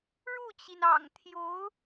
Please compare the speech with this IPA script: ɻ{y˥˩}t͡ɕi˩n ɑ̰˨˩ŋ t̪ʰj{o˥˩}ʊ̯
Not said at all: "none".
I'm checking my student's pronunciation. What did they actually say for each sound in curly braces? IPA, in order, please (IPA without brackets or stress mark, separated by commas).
u˥˩, o˧˥